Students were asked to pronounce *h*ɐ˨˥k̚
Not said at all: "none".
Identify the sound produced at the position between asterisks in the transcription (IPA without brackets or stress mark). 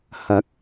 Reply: h